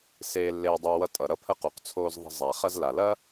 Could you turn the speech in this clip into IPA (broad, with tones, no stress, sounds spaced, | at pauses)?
s eː˧ lː eː˧ dˤ əː˧ w ʌ˧ tʼ ʌ˨ ɾ ʌ˧ pʰ ə˧ q u˨ q t͡sʰ oː˧ z ðˤ ə̤˧ zˤ a˨ χ ɐ˧ z l a˨ l ɐ˦